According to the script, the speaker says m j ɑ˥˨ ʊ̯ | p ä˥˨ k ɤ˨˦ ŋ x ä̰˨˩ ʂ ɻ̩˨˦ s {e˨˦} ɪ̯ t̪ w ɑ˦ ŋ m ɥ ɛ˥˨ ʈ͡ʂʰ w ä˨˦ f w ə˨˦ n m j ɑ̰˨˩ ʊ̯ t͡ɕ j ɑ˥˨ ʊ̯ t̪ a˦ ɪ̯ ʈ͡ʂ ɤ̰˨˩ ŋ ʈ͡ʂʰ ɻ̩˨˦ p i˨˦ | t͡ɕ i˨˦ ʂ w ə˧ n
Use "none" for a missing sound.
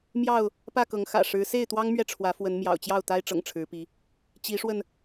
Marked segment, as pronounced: e˥˨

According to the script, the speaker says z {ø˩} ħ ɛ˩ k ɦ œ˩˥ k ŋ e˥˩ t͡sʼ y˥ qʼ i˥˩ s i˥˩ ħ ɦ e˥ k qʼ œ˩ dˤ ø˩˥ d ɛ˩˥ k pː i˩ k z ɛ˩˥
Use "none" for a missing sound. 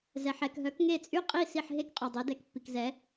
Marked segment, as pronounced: ɛ˩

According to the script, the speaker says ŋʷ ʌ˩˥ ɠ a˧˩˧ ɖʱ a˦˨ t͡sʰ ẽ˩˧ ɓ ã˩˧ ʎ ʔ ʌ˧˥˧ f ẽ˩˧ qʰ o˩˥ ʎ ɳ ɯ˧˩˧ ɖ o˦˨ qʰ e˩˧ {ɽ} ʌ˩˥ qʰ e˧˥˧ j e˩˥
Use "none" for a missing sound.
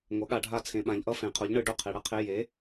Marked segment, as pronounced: ɽ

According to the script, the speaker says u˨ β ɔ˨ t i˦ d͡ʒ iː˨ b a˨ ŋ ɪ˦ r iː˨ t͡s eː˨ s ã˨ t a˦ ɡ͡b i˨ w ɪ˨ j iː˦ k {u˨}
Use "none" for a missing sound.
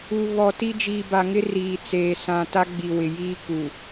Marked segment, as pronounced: u˨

